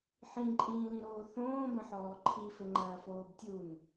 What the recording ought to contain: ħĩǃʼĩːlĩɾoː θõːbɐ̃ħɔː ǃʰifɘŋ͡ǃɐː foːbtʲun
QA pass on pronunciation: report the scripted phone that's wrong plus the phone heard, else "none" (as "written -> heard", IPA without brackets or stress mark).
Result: none